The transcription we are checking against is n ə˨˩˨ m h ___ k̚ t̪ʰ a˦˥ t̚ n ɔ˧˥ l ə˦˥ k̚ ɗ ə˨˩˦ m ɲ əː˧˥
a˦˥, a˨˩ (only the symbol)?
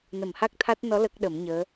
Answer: a˦˥